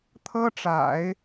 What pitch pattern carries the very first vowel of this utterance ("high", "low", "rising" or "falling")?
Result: high